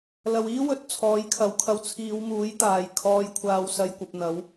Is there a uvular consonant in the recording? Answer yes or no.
no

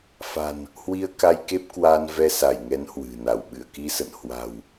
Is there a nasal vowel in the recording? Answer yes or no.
no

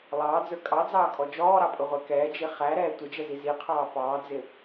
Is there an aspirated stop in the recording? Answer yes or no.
yes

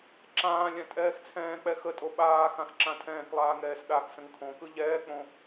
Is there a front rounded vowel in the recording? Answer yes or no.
no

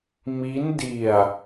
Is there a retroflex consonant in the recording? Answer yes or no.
no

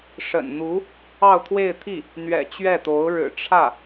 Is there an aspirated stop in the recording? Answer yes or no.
yes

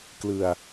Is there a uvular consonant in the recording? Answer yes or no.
no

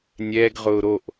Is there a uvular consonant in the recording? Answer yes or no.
yes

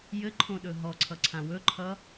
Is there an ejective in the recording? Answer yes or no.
no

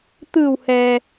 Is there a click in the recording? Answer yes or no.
no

